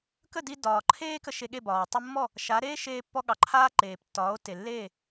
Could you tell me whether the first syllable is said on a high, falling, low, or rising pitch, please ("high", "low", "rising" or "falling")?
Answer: falling